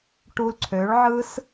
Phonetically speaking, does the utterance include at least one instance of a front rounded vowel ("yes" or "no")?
yes